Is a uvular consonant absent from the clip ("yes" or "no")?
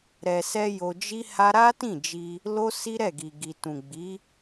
yes